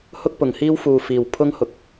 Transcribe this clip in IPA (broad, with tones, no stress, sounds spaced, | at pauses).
h ʊ˥ k̚ p ʊ˨˩ ŋ h iː˥ w f uː˨ f iː˨˩ w pʰ ʊ˥ ŋ h ʊ˨ k̚